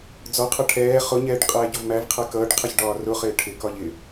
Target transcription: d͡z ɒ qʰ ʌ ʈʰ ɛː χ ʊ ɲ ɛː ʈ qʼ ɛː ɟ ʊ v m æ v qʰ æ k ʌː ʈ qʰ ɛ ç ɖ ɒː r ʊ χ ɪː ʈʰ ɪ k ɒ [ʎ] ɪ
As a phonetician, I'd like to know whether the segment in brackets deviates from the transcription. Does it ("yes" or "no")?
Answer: no